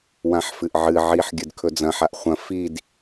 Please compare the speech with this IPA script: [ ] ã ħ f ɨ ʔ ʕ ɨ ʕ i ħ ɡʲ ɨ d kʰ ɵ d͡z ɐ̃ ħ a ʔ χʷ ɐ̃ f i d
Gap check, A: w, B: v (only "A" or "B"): A